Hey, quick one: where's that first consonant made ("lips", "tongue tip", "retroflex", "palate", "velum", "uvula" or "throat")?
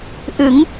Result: throat